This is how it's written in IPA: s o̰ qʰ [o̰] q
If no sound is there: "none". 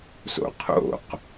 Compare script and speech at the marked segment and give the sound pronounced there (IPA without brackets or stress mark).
o̰